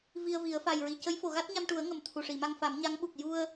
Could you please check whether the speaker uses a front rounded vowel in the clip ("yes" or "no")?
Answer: no